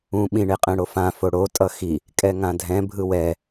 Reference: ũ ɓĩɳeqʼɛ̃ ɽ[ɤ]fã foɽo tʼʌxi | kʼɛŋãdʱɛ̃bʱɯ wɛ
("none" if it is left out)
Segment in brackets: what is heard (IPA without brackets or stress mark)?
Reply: o